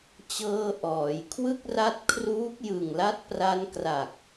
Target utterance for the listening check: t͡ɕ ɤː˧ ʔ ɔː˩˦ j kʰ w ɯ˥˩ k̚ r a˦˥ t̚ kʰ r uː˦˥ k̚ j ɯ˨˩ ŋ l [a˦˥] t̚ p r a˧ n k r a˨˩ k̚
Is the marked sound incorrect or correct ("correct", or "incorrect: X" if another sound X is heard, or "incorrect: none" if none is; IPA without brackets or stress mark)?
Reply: correct